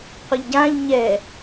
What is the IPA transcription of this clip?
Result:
qʷ ɯ ʎ ɟ ã ʎ ɲ ɛ

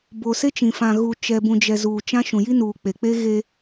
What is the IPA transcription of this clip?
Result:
b o˨ s e˦ t͡ʃ ĩ˨ f ã˨ ɣ u˨ t͡ʃ ɛ˨ b ũ˨ d͡ʒ ɛ˨ z uː˨ t͡ʃ ã˦ ʃ ũ˨ j i˦ n uː˨ k͡p e˨ k͡p e˦ ɣ e˦

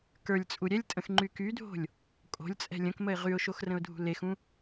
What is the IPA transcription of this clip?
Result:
k ə˞ lʲ t͡sʼ u ɾʲ ɛ lʲ tʼ ə̃ x ŋ͡ǃ y k y dʱ o̤ lʲ | kʼ o̤ lʲ t͡sʼ ɛ̤ lʲ ə̃ k m ə ɪ̯ ʁ y ʊ̯ ʃ o x r ə̃ ʊ̯ dʱ ṳ l e x ũ

